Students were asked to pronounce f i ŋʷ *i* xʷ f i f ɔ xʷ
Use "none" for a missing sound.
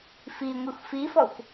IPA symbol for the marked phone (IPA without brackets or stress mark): i